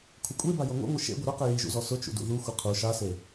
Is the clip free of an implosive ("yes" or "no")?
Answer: yes